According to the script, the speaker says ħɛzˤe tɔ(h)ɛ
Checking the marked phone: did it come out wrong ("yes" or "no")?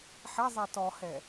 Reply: no